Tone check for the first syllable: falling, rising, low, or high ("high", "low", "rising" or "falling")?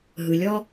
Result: low